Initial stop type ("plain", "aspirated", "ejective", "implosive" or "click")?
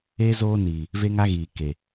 plain